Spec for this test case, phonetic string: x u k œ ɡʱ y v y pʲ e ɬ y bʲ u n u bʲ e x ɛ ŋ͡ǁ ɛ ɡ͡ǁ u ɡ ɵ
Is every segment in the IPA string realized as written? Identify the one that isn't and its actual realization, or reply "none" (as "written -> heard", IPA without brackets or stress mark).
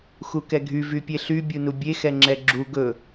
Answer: œ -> ɛ